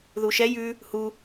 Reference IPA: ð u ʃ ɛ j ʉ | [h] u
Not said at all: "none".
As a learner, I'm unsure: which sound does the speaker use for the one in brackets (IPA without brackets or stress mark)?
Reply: h